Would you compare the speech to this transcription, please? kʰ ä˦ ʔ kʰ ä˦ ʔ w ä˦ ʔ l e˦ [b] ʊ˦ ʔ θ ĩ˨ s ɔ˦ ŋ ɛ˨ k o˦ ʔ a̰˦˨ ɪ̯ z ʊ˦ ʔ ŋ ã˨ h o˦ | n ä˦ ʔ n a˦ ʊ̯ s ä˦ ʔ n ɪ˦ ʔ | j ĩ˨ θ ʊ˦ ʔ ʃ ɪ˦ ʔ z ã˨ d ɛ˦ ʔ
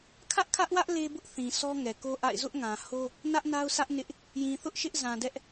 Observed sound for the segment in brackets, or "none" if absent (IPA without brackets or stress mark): b